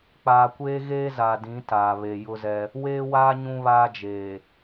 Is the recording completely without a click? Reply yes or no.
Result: yes